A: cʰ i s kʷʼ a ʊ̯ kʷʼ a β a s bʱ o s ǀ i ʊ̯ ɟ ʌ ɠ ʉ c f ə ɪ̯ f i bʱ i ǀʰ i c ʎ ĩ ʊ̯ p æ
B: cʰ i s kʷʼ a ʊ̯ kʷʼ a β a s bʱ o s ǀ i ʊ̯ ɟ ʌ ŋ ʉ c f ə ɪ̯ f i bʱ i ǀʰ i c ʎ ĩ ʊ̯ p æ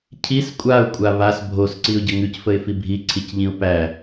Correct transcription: B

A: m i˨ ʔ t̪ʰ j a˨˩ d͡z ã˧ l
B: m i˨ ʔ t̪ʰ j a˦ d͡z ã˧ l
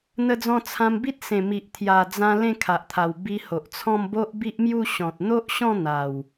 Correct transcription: A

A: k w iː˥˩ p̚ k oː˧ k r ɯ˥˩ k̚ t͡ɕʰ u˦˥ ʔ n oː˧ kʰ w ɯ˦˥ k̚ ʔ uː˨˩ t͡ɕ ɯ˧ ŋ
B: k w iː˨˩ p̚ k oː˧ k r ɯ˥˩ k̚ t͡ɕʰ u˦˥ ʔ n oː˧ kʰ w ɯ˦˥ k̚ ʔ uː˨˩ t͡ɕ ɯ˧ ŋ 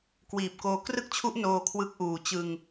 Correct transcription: B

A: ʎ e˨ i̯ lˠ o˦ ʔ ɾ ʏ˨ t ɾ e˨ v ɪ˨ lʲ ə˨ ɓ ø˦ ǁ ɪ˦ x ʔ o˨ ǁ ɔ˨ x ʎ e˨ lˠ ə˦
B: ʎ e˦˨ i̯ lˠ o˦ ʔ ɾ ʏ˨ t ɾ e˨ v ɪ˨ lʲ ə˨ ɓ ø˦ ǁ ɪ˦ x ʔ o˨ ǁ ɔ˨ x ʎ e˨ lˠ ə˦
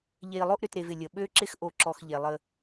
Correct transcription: A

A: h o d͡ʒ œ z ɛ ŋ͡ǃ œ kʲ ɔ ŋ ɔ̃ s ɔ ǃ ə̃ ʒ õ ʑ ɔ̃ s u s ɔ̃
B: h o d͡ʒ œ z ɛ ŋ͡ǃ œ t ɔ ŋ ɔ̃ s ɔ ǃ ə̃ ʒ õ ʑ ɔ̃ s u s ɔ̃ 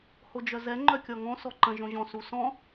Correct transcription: A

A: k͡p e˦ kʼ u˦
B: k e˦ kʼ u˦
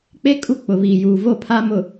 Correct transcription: A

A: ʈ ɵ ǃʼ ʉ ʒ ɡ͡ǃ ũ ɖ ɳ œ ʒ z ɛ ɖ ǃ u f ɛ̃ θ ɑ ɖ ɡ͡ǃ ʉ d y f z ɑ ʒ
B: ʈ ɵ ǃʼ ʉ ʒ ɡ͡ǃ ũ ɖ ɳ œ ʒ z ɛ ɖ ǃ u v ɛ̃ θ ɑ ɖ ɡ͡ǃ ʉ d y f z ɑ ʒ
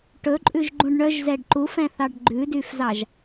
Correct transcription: A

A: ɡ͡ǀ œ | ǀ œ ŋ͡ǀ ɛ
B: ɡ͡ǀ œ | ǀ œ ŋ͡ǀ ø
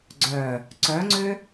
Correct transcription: B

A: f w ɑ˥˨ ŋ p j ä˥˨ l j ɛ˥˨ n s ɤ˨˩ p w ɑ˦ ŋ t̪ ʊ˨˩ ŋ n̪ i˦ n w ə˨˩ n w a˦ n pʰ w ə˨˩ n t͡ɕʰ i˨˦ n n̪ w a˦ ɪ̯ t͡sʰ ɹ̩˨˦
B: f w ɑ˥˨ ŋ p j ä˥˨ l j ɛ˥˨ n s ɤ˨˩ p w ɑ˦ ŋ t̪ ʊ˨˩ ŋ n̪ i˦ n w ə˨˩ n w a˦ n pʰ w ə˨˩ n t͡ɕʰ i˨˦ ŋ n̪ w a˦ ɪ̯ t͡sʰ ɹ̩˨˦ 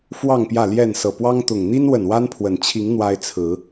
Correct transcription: B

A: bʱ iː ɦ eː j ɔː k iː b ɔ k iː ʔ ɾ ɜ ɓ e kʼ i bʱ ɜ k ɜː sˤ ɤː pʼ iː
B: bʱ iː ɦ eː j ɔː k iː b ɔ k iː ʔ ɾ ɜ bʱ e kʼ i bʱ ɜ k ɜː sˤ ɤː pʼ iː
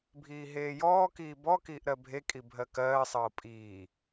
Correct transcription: B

